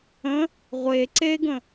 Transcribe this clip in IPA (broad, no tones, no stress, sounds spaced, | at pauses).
ə̃ | ʁʷ e ǀ e ɡ ə̃